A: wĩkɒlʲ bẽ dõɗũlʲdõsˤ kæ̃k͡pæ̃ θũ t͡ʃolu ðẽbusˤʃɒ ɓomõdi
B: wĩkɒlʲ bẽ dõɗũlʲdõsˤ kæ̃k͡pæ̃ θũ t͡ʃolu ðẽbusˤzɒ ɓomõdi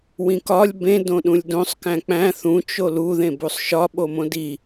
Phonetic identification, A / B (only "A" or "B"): A